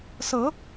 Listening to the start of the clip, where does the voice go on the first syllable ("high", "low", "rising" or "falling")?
rising